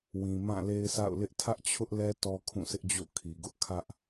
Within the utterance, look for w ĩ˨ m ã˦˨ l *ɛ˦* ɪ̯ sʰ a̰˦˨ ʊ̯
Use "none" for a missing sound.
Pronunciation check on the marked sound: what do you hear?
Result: e˦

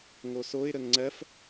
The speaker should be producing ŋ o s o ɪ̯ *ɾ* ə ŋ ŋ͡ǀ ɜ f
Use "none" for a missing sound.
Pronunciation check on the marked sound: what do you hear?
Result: ɾ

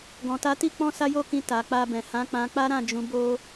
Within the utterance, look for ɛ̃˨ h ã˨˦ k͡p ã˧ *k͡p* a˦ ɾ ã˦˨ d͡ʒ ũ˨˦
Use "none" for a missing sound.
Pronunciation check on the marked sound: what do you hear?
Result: k͡p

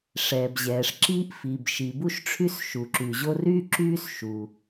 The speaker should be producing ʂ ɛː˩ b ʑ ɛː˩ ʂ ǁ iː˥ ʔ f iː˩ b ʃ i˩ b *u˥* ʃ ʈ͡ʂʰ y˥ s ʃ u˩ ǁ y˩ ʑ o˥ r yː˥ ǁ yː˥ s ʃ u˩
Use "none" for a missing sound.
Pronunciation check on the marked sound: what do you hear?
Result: u˥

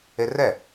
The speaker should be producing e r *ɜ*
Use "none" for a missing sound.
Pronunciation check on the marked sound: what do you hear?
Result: ɛ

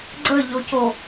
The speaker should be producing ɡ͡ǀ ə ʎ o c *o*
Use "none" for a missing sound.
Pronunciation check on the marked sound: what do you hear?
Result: o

